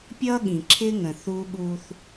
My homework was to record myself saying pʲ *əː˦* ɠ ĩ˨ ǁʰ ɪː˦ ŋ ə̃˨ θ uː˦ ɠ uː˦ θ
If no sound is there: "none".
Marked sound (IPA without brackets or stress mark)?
ʌː˦